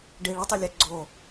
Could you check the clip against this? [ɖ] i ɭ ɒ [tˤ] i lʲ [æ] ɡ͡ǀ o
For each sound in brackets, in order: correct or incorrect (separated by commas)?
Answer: correct, correct, correct